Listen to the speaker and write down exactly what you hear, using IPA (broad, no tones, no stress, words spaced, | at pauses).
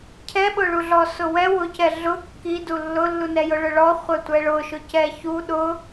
cʰɛɓʊɭuɮɔ sʊwɛ wʊcɛ ɮʊ kːidu lːʊlːunɛ jʊɭʊɭɔ χʷɛtʷɛɭʊʃʊ cɛçu ɗʊ